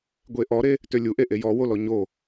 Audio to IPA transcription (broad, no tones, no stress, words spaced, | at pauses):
ɡʷeʔɔɾe | tølʲuʔeʔe jɔwo lɔɲo